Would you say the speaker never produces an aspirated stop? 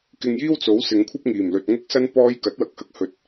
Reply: no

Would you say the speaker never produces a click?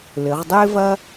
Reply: yes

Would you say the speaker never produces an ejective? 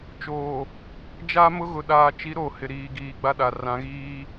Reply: yes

